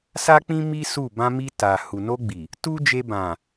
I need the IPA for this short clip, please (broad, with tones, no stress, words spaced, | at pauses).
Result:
sa˦k͡pĩ˦ mi˦ su˦˨ bã˧mi˧ ta˨ hu˨no˧ɡ͡bi˨ | tu˦d͡ʒe˧ bã˨